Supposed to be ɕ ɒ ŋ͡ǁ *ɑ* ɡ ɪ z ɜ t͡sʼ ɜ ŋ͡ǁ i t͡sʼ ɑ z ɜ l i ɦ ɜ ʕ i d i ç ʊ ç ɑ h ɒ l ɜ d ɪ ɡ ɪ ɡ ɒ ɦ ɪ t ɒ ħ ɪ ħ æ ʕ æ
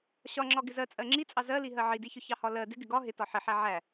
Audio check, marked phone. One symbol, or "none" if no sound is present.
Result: ɒ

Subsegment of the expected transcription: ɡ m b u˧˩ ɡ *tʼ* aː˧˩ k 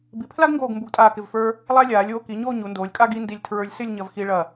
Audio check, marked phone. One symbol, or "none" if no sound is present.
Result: tʼ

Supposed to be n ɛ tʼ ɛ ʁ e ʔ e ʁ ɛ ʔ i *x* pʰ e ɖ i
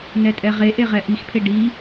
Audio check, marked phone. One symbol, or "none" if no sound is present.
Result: x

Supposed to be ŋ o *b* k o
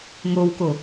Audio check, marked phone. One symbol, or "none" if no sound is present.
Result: w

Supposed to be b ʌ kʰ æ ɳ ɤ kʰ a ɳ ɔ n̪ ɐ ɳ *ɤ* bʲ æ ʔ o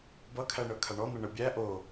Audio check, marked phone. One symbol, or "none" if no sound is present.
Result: ɤ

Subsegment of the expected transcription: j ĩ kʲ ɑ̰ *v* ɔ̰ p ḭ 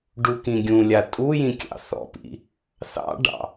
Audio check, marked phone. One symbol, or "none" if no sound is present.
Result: θ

